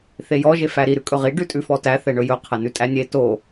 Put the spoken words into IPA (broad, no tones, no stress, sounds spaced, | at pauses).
θ e j ɔ ʒ e f æ ɾ i ɾ ʉ kʼ ɵ ʁ i ɖ ʉ tʼ ʉ f ɔ t æ θ ɛ ɳ ɵ j ɵ qʰ ɛ n ʉ tʼ æ nʲ e t o